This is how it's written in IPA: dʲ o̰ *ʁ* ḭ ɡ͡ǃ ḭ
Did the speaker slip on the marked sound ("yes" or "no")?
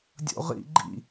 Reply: no